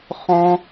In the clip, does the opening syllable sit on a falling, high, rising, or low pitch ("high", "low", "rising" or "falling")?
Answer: high